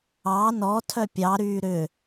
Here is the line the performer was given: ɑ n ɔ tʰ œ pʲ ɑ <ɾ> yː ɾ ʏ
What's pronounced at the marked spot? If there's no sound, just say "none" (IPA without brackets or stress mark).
ɾ